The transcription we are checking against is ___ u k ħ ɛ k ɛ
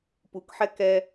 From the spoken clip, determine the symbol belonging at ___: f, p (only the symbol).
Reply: p